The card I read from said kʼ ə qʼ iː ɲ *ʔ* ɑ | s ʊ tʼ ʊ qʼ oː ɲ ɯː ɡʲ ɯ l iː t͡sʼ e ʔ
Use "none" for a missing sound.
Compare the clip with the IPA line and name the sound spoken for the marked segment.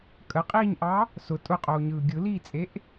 ʔ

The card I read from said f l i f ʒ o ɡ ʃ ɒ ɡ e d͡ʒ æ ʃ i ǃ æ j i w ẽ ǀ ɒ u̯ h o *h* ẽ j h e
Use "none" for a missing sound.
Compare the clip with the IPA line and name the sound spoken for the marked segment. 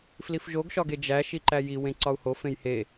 f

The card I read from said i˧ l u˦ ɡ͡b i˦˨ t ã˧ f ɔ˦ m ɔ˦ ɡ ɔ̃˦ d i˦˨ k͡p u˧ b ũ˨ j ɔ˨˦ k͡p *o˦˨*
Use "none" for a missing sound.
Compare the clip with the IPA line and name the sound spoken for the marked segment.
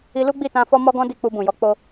o˧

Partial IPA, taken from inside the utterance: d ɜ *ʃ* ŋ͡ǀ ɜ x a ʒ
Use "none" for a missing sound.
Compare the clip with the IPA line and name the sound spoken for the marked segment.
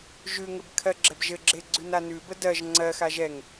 ʒ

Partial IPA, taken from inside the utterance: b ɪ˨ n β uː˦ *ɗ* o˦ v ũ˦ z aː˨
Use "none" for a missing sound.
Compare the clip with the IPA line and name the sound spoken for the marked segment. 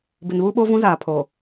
ɓ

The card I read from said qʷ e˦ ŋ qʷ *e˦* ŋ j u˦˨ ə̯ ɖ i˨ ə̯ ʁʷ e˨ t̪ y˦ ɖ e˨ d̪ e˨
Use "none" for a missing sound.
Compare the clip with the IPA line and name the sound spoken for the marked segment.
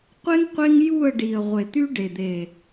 e˦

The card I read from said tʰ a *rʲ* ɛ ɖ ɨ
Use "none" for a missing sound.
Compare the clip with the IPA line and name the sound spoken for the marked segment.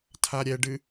ɾʲ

